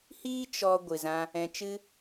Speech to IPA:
h iː˦ t͡ʃ ɔ˧ ɡʷ ɨ˨ z ã˧ | ɛ̃˧ t͡ʃ ɨ˦

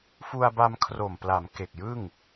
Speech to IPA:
f u˧ a̯ b a˧ m kʰ r o˨˩ m p l a˩˦ m k e˨˩ k̚ j ɯ˥˩ ŋ

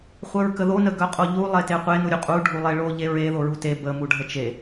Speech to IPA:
χʷ œ ɹ k ə ð o n ə ɡ œ qʼ o ʎ u lˠ e t e qʷ e n u ɾʲ u qʼ u ɖʱ u lˠ e ɭ o ʎ e ɹ e ð o ɹ u t e b ə m u ɖʱ ə t͡ʃ e

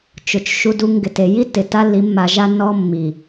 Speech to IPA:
t͡ʃ ʊ˨ t͡ʃ ʃ u˧ d u˧ ŋ ɡ ɪ˨ t e˨ j i˦ tː ɪ˨ t a˦ lː i˨˦ mː a˧ ʒ a˦ nː ɔ˦ mː i˨

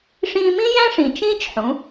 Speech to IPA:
ʂ ĩː˧ m ĩ˥ j æ̃˥ ʂ ĩ˩ t͡ʃ ĩː˥ t͡ʃ ħ ũ˩˧

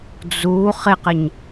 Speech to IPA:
d͡z u χ ɪ q ɪ ɲ

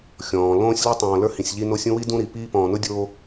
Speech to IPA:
xʲ ɔ̃ː˨ l õː˦ sʲ l ʊ˦ tˤ õː˨ l ə˞˦ h ĩ˨ sʲ ʎ i˦ n o˦ sʲ ũ˥ w i˥ d ũ˦ ɾ i˩ p iː˦ p ɔ̃ː˨ n ʊ˥ dʲ oː˦

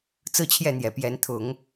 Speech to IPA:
t͡s ɹ̩˦ t͡ɕʰ j ɛ˥˨ n̪ j ɛ˨˩ p j ɛ˨˦ n t̪ʰ ʊ˨˦ ŋ

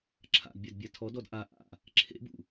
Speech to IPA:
ǁʰ a̰ d bʲ a d bʲ a tʰ ɔ d ɔ d ʔ a ʔ a̰ | ǁʰ ḛ b ṵ

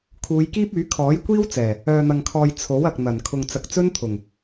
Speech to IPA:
kʰ uː˨˧ j k iː˥ p̚ yː˨˥ kʰ ɔː˨˥ j kʷ iː˥ w t͡s ɛː˨˩ | œː˧ n̪ ɐ˧ ŋ kʰ ɔː˧ j t͡sʰ o˨˥ w ɐ˨ k̚ n̪ ɐ˨˩ n kʰ ʊ˨ ŋ t͡s ɐ˨ k̚ t͡s ɵ˥ n t̪ʰ ʊ˨˩ ŋ

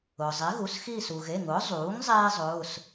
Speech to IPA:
ʊː˩ zˤ i˩˥ ɣ u˩˧˩ s x iː˦˨ s u˩ ɣ e˩˧˩ ŋ ʊː˩˥ zˤ uː˩˥ ŋ zˤ eː˥ zˤ ʊː˩˧˩ s

